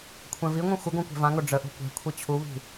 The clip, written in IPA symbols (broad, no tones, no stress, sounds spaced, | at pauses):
kʷʰ ɛ̃ v i ŋʷ ĩ xʷ ə ɡ õ kʷ ɛ̤ v ã ŋ o ɖ͡ʐ ə ʔ o̤ kʷ ɛ̤ kʷʰ i t͡ɕʰ u β i̤